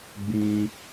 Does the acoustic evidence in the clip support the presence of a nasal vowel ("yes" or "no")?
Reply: yes